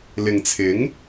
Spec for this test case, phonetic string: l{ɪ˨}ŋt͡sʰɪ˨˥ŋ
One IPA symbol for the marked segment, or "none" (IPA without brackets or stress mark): ɪ˨